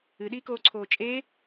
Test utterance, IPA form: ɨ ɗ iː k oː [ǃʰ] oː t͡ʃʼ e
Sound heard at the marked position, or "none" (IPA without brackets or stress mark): ǀʰ